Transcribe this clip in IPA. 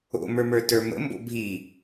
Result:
o̰mə˞mə˞ tə˞mə̰mbo̰ bʱi

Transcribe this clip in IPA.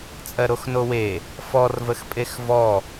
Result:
t͡sʼɜɾoxnowe | fɔrvəxpʼex vɔ

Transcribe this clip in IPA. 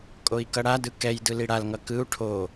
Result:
kʼoi̯kʌɽadɯ kɛjdɯ liɽal ŋʌkɯu̯ ʈʰo

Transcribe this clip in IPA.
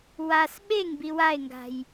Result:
was ɓeŋbi wae̯ŋɡa̤j

